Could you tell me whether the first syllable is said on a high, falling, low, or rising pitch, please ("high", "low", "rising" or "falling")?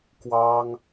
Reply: high